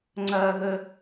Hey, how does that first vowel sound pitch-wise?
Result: low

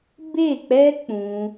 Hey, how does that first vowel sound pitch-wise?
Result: falling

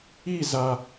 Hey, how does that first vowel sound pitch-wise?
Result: falling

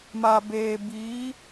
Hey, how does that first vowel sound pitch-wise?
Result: low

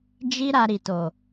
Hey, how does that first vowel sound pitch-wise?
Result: high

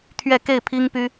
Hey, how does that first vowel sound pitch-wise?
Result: falling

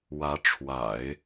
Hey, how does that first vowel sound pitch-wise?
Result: rising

